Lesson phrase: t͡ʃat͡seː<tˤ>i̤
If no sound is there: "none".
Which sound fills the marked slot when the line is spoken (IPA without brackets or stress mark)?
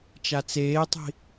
tˤ